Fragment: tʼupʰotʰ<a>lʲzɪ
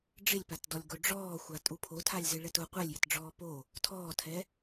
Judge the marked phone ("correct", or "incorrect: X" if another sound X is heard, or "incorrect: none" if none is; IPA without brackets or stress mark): correct